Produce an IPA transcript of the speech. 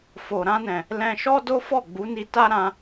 fo˨ ɾã˧nɛ̃˨ | lɛ̃˧ʃɔ˦do˦fɔ˦˨ ɡ͡bu˨˦ni˧ta˦ ɾã˧

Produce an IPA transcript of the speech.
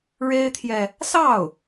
ɻe˥ɪ̯t̪ʰjɛ˨ | sɑ˥˩ʊ̯

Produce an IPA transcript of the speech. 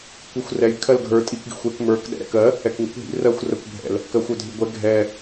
kʷixʷrɛj kʰɜlɡʱə˞ tʼik ɡḭxʷɛk mə˞k ɗɛ̰ɾɛ̰kɜ | ɛkŋḭkʷɦḭ rɜxʷrəkʷ bʱɛ̰l | kɜxʷœdʱiɡʷɛ ɡʱɛ

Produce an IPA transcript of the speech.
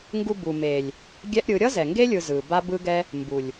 ŋɡu˧bu˨ me˨lʲ | ɡʲɛ˦ʔɾʲɯ˨˦ ɾʲʌ˦zɛ˨ŋɡe˦ lʲɯ˧zɯ˨ ba˦bɯ˦ɡɛ˦ | mbu˨lʲ

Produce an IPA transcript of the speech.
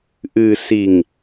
ʔɨ˨si˨ŋ

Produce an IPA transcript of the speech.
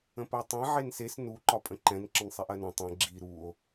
ə̃pɜtˤɛ̃ ʕenses nu ǃɒpʼə̃ǃɛ̃n ǁə̃nsˤiʔɜnɐ̃ tˤɛ̃ ɡ͡ǁi ɾuo̯

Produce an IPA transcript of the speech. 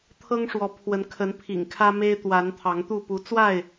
t̪ʰɤ˦ŋʂwɔ˨˦pʰwə˨˦n kʰə˨˦npʰḭ˨˩ŋkʰä˦ me˦ɪ̯t̪wa˨˦n t̪ʰɑ˨˦ŋt̪u˥˨ pu˨˦t͡swa˥˨ɪ̯

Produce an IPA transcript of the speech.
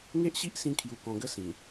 ŋe˦ʔɕi˦ʔsĩ˧kʰju˨˩ kɔ̃˨˩ɡə˦ sĩ˨˩

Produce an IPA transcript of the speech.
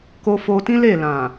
ko˧fo˧tĩ˦ le˦˨lã˨

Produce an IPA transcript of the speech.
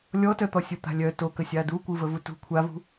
lʲɔtœt̪ɔ sʲɯt̪a̤lʲœ tokə sʲadukʷɯvə vutṳ kʷʰavṳ

